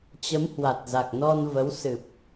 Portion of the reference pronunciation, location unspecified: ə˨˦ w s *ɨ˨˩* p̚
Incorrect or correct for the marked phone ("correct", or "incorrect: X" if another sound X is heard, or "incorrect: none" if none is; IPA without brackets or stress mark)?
correct